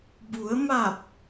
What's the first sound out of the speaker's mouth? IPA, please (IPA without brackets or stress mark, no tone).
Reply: b